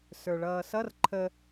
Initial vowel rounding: unrounded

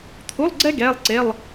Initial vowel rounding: rounded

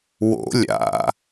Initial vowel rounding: rounded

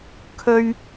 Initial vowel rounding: rounded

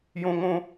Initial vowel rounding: rounded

